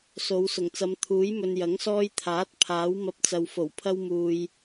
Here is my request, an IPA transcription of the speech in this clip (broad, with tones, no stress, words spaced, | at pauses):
so˨˧w sʊ˨˩ŋt͡sɐ˨˧mt̪ʰuː˨˥jmɵ˨n jɐ˨˥ŋsɔː˧jt̪ʰaː˨˥t̚ pʰaː˨˥wmɐ˧p̚t͡sɐ˨w fo˨˩wpʰɐ˧wmuː˨j